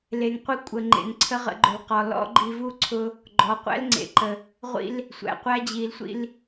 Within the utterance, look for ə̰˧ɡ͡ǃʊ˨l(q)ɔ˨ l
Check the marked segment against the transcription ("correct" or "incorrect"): correct